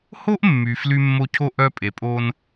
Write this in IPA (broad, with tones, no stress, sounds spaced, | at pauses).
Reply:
h o˥ ʔ mː y˨ f l y˦ mː o˦ cʰ o˥ ʔ œ˦ pʼ e˨ pʼ o˦ n